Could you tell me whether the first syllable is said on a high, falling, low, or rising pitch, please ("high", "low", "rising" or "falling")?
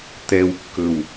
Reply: low